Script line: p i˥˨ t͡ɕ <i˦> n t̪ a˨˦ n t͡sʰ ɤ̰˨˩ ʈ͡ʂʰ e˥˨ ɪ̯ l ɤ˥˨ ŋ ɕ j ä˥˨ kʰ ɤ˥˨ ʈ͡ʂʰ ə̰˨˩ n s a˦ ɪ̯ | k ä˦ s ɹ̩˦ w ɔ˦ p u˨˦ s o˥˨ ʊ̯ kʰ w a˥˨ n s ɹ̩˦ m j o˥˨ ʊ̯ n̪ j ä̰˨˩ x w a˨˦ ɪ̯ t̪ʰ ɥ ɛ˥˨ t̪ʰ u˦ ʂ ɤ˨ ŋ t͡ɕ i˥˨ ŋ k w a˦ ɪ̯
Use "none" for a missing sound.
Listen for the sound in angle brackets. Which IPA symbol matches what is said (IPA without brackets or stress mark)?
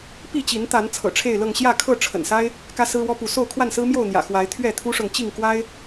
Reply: i˨˦